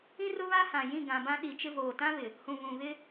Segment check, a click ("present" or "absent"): absent